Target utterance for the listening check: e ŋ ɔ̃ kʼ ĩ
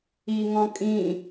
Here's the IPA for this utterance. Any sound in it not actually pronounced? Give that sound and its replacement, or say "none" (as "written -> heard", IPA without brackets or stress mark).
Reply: e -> i